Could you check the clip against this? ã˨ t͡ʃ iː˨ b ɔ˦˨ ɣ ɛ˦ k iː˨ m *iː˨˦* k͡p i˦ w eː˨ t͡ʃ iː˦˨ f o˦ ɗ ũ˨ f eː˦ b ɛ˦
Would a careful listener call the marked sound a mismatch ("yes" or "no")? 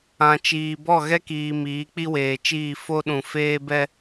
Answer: no